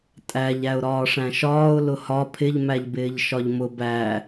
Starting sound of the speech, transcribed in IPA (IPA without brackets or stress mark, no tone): tʼ